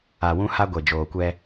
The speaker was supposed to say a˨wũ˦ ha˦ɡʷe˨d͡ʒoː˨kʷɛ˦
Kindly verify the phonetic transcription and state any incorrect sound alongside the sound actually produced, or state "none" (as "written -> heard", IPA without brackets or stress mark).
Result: none